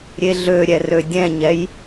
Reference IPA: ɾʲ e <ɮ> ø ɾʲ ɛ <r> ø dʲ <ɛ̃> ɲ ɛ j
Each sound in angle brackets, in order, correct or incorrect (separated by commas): correct, correct, correct